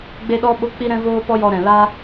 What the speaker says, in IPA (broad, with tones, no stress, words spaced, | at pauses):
ɡ͡be˦ɗɔ˦ ɓo˦k͡pi˦ɾɛ̃˦ voː˦pɔ˦jɔ˧ ɾɛ̃˨la˦